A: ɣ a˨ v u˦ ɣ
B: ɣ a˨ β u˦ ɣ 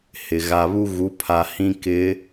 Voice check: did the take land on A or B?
B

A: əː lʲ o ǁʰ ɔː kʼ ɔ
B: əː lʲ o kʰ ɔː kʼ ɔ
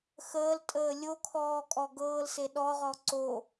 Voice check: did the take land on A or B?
B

